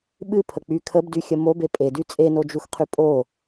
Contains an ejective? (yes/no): yes